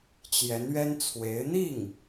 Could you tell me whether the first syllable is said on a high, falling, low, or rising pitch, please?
rising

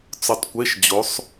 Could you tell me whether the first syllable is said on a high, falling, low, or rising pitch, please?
rising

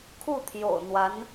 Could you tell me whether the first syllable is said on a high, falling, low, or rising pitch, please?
falling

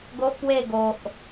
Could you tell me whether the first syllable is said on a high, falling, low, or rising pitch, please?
high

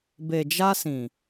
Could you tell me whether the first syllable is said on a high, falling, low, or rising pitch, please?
low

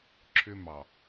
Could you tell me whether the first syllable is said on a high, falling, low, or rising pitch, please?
high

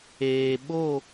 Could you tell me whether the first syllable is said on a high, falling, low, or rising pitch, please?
low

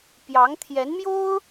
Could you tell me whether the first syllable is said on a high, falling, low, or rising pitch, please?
rising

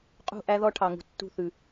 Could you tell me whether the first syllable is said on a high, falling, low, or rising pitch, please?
falling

